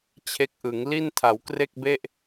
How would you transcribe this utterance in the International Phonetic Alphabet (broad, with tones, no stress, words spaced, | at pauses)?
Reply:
t͡ɕʰe˦˥k̚ʔɯ˩˦ŋ li˥˩ntʰa˩˦wkre˥˩k̚be˥˩ʔ